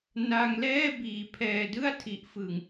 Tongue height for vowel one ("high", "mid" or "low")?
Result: low